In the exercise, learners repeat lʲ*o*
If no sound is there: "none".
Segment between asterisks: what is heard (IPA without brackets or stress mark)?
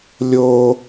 o